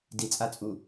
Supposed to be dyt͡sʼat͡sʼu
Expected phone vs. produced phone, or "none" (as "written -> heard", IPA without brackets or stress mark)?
y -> i